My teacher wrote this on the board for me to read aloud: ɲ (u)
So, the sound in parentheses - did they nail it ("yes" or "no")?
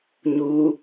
yes